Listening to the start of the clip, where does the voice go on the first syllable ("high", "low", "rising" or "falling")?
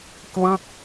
falling